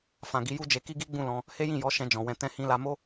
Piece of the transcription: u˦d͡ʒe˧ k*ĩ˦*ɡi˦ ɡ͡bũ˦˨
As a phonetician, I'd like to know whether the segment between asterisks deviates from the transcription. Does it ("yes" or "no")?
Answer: yes